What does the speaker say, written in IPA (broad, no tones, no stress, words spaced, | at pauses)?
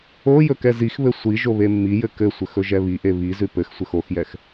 o jɵkɛzixβɘ sʷiʒo βemːijɘ kɘsʷɘx ɵʒɛβiʔe βi zʉpɘxsʷɘx oxjɛx